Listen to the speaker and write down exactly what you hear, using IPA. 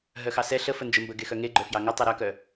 ɦ œ x ɑ s ɛ ɬ ə f ə n d͡ʒ ə m b ə ɡ e x œ ŋ e ɡ͡ǃ œ f j ɑ ŋ ə tˤ ɯ ɾ œ k œ

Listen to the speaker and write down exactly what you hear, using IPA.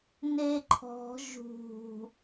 n e ǃʰ ɔ̤ ʒ ṳ

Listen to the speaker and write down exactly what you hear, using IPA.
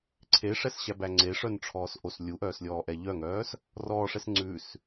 ǀʰ e ʂ ɛ s ɕ æ b æ ŋ͡ǀ e ʂ œ n ʈ͡ʂʰ ɔː s ʔ o s lʲ u ʔ œː s lʲ ɔː ʔ ɛ ʎ œ ŋ œː s | r ɔː ʂ ɛ s ŋ͡ǀ ʉ s

